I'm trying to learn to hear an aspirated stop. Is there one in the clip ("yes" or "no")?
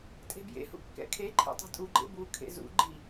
yes